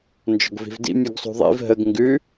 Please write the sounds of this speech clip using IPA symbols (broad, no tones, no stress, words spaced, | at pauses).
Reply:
nd͡ʒɔ̤ɡvi̤vdḭ mʲʉɡsˤṳðˤḭv ɦəɡ ŋɡʉ